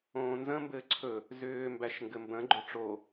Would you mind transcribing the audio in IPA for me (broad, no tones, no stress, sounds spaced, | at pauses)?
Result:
õː n z ə̃ m b ɘː ǀʰ ɵ | z ʏː m b æ ʃ ŋ ɡ ɘ m b ə̃ ɡ͡ǃ ʏ ʈ͡ʂ o